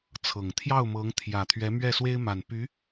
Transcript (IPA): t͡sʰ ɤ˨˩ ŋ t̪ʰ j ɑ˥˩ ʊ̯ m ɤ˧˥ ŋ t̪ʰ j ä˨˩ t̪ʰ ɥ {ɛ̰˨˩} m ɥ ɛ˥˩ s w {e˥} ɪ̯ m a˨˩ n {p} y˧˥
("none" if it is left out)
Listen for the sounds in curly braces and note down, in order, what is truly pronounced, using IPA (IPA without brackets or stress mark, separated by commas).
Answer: ɛ˧˥, e˥, p